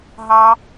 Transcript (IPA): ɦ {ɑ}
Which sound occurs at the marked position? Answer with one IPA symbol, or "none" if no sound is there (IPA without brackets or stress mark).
ɑ